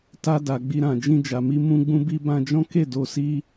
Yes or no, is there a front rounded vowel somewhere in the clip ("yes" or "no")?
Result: no